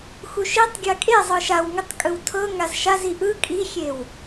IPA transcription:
x u ʃ i tˤ ɡʲ a kʼ e zˤ ɯ ʃ a w ŋ ɯ tˤ kʼ ɯ w tʰ ɤ ŋ a z ʃ a z i ʔ ɯ kʼ i xʲ e w

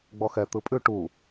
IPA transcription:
ɡ͡b ɔ x ɛ t̪ ɯ pʼ ʉ ʈ u

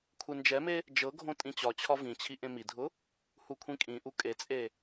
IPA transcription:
kʷʰ e n d͡ʒ ɛ m e | d͡ʒ ɤ ɡʱ õ tʼ ĩ t͡ɕ ɒ t͡ɕʰ ɒ v ĩ t͡ɕʰ i ʔ ẽ m i dʱ ʊ | h u kʷʰ ĩ kʼ ĩ ʔ u kʼ e t͡sʼ e

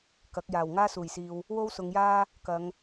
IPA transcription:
k ɐ˨˥ k̚ j aː˨˩ w ŋ aː˥ s uː˨˩ j s iː˨ w | w o˥ w s ʊ˨˧ ŋ j aː˥ | k ɐ˨˧ ŋ

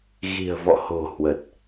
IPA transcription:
ɣ i̤˨˩ ə̯ v ɔ̰˧˨ h o̤˨˩ h w ə˨˩ t̚

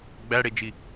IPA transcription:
ɡ͡b æ ɽ e d͡ʒ i

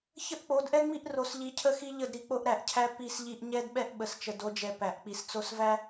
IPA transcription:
ç ə˦ ʔ k͡p o˨˦ d ʔ ɛ˦ ŋ͡m i˦ ʔ r o˨ s ʎ i˨ cʰ ə˦ x i˦ ʎ ə˦˨ d ɾ i˨ k͡p o˦ ʔ ɾ æ˨ ʔ cʰ æ˦ p i˦˨ s ʎ i˦ ʔ ɲ ɛ˦ d ɓ ɛ˦ ʔ ɓ ə˨ s t͡ʃ ə˨ d o˨˦ d͡ʒ ɛ˨ p æ˨ ʔ k͡p i˨ s t͡s o˦ s v æ˦

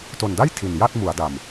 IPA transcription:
t o˨˩ n d a˥˩ j tʰ i˨˩ n j a˥˩ t̚ m u˩˦ a̯ d a˨˩ m

